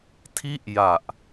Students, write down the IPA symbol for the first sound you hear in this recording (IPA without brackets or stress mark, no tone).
tʰ